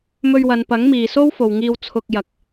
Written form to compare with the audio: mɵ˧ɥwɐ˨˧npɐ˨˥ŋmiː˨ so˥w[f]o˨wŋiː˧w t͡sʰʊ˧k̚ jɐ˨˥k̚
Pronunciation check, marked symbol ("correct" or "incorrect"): correct